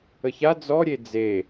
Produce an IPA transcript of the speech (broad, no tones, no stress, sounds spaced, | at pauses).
ə ç a d͡z ɔ ɾʲ e d͡z e